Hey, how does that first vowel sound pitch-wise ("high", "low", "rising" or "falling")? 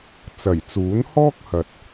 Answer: low